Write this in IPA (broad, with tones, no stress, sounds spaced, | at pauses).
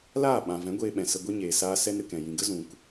l aː˦˨ ɓ ã˨ v ɛ̃˨˦ ɡʷ eː˧ ɓ ɛ̃˨ s ə˧ ɡʷ i˧ ɲ eː˨ s aː˧ s ɛ˦ n ɾ ɨ˨ k ɛ̃˨ j ĩ˨ ɡ ə˦ z ũ˨ k